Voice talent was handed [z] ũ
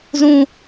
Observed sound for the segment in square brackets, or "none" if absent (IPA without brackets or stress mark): z